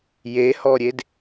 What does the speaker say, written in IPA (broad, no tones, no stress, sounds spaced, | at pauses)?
j e h ɔ ɾʲ e d